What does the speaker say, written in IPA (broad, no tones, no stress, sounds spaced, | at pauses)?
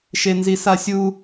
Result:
ʃ e n z i s a sʲ u